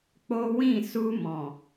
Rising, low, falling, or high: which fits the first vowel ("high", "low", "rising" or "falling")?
high